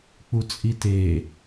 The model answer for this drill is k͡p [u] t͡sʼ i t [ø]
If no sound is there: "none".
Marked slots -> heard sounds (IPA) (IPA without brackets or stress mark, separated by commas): u, e